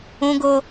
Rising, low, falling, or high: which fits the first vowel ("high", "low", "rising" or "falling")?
high